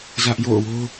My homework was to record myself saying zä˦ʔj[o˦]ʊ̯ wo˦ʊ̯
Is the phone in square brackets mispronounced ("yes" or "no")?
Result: yes